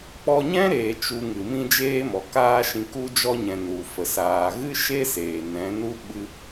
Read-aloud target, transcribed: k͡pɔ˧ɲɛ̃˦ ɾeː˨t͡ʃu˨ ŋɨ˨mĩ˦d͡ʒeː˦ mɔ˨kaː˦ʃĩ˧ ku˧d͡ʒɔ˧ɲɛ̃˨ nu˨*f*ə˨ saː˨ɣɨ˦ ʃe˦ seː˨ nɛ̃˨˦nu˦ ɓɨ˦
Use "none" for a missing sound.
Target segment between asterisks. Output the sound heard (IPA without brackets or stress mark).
f